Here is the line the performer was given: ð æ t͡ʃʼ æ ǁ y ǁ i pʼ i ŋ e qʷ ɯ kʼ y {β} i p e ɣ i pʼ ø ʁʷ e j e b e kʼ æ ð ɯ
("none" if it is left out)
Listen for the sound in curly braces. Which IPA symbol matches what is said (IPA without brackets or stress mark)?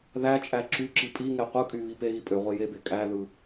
β